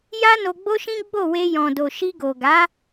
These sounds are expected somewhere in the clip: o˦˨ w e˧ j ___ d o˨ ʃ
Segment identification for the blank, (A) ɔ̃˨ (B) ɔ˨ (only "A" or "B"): A